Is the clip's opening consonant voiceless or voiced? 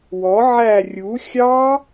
voiced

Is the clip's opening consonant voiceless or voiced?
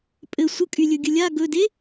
voiceless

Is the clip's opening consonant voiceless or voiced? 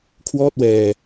voiceless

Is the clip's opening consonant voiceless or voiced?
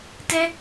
voiceless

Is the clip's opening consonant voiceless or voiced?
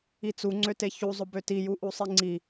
voiceless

